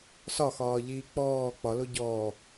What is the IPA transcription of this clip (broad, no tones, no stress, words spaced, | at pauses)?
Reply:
sɒxɒːʎiː k͡pɔː k͡pɒlo ɟɔː